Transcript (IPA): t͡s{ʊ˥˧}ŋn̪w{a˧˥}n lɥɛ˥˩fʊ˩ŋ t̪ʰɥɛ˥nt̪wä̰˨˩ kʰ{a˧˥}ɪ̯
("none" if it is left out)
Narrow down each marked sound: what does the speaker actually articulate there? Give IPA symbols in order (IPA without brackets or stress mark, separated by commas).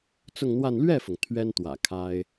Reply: ʊ˥˧, a˥˧, a˥